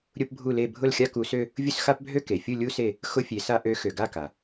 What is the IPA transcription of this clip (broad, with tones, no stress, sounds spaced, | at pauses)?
ɾʲ ʊ˥ p bʱ u˥˧ l e˥˧ bʱ ʊ˥˧ l xʲ a˥ k u˧˥ s ø˥ | vʲ ʊ˥˧ s x a˥ p bʱ ø˥ k e˨ fʲ u˥˧ lʲ u˥ s e˥˧ | x ʊ˥ fʲ e˧˥ s a˥ ʔ ø˧˥ x ø˨ ɡ a˥˧ k a˨